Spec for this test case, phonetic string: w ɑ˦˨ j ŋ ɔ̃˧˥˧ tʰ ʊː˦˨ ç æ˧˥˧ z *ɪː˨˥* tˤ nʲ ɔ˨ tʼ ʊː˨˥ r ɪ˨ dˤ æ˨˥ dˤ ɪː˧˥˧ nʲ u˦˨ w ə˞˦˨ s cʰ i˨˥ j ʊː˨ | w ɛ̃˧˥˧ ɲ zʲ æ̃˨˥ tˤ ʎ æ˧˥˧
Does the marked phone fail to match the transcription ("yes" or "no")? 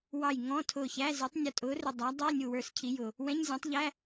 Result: no